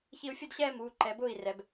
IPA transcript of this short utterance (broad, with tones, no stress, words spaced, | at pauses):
çi˧u̯fʲʊ˥˧dɕɛː˥˧ muː˩˧˩ ǃɛ˩˧bʊː˥˩i̯rɛ˩˧b